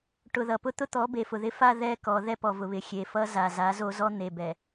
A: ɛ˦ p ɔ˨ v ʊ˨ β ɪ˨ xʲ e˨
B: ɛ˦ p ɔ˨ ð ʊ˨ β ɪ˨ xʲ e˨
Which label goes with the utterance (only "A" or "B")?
A